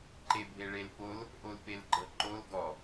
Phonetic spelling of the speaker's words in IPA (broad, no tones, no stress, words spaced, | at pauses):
ǃebʱeɭelpol | ʔolpelɡ͡ǃɤǃol ɡɔ